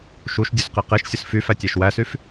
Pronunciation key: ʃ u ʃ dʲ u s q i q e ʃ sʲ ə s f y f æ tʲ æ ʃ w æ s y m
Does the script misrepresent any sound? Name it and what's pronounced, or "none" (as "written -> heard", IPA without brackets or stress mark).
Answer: m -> f